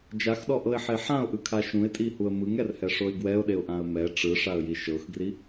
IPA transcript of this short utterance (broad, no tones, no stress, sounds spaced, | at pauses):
d͡ʒ a x ɗ ɔ ʔ ɤ ɪ̯ ħ e ħ ã ʊ̯ ʔ ɯ kʰ a ʃ ũ ɪ̯ tʼ i h u ə̯ m ɯ ŋ ɛ r h ɛ ʂ o ɪ̯ ɡ w ɛ ʊ̯ ɗ e ʊ̯ ʔ ã ə̯ m ɛ ʈ͡ʂ ɯ ʂ a ə̯ j i ʃ ɤ x ɡ r i